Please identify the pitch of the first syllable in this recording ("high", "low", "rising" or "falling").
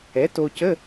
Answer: rising